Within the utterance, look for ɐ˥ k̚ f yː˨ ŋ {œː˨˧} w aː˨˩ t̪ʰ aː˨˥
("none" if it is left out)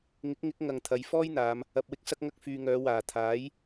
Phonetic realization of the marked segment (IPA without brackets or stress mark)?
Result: œː˨˧